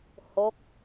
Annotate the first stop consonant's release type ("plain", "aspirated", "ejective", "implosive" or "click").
plain